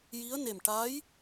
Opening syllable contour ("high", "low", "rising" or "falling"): rising